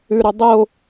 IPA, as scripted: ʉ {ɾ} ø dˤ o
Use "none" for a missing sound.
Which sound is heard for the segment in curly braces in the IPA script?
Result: ɾ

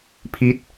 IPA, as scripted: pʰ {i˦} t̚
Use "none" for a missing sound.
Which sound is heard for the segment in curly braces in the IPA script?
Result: i˦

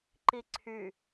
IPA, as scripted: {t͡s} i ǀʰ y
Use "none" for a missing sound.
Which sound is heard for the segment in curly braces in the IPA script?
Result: ǃ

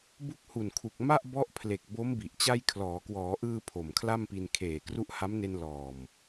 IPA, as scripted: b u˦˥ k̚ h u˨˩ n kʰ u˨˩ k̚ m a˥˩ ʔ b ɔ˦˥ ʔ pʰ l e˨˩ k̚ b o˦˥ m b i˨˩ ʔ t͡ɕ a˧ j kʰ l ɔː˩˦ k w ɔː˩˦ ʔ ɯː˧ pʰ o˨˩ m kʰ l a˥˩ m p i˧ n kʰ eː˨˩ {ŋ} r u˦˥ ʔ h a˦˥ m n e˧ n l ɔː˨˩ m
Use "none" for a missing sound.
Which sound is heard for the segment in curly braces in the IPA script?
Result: k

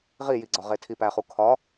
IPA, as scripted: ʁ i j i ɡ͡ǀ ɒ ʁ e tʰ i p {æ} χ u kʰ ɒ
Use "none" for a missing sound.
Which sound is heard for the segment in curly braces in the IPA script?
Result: æ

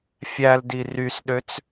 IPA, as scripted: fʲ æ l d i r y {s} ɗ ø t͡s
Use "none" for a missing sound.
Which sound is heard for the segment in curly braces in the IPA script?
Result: s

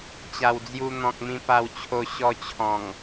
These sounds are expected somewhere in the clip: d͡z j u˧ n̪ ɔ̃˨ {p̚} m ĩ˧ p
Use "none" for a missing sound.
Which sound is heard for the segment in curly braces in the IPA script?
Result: k̚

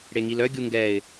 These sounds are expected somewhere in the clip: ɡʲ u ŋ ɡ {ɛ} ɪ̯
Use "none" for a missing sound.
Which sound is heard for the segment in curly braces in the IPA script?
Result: ɛ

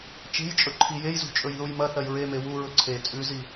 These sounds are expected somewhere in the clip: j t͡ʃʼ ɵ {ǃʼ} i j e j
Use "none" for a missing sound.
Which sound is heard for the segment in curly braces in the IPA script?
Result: ǃʰ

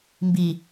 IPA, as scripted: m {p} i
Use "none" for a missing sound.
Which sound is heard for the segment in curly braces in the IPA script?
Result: b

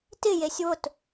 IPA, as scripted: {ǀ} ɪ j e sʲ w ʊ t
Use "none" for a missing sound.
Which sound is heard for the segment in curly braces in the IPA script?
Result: t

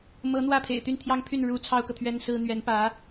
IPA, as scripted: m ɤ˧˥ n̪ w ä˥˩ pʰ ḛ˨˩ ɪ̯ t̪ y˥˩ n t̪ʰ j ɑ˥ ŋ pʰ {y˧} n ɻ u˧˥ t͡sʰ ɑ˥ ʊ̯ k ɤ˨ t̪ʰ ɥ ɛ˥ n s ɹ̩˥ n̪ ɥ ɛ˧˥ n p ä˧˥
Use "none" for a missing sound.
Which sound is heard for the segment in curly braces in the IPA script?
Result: y˥˩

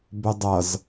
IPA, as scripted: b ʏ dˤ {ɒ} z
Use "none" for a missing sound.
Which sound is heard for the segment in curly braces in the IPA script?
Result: ʌ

